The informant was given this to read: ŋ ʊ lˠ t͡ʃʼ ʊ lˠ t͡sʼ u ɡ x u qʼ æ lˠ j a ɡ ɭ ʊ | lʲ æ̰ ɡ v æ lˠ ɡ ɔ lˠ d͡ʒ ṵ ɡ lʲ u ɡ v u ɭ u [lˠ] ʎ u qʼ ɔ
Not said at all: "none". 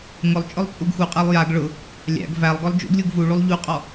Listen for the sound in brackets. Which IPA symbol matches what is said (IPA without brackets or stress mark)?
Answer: lˠ